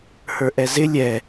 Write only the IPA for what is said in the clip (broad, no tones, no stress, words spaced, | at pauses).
hə˞ʔɛzɪ lʲɛ